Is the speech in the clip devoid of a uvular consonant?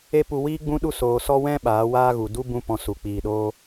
yes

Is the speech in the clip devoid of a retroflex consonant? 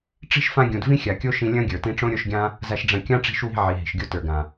no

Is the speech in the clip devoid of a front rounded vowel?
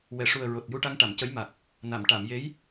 yes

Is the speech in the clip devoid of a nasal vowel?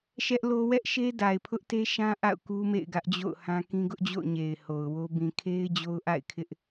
no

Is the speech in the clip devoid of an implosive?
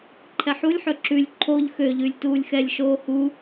yes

